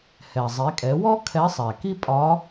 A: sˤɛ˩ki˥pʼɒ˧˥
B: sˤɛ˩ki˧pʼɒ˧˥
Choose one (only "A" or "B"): A